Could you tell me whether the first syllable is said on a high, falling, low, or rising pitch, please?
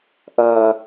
high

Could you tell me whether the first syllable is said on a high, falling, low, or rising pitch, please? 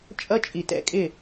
high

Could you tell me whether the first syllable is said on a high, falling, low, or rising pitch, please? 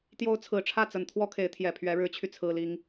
rising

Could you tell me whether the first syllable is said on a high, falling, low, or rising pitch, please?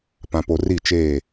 low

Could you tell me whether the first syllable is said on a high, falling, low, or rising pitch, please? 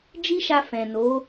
high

